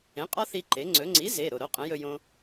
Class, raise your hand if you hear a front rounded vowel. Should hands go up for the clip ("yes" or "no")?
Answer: no